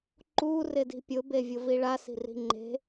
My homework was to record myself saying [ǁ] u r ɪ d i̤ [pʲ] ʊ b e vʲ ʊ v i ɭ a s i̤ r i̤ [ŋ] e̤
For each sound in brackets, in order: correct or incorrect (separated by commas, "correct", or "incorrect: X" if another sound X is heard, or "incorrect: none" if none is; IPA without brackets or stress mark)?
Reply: incorrect: ǃ, correct, incorrect: ŋ͡ǃ